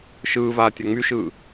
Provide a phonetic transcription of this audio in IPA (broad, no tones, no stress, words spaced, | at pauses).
ʃɯːvaː tʲaŋ͡myʃɯː